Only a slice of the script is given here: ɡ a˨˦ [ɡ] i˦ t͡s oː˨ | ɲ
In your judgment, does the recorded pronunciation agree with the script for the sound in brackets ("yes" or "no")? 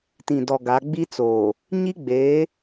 no